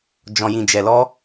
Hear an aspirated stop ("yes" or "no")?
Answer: no